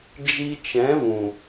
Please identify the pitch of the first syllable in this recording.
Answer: high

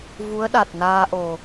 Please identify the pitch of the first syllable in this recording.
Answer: rising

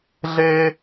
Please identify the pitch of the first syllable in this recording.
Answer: high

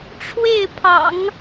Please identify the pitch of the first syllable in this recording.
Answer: falling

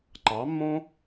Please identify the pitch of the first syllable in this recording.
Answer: rising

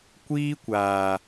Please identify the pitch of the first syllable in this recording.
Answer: high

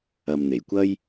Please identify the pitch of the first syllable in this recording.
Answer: low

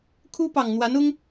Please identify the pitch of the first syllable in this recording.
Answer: high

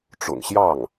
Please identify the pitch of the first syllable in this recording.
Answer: low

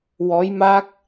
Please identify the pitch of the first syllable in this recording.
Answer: rising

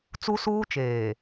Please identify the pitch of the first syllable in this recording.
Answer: high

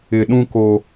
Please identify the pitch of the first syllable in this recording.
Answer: low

